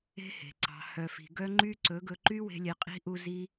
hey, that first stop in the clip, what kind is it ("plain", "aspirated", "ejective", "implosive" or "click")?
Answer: click